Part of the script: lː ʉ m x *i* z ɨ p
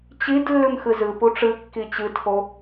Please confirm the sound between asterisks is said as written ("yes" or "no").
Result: no